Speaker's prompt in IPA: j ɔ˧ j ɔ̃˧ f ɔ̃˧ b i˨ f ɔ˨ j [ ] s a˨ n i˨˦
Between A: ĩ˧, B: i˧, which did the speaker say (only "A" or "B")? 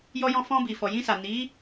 A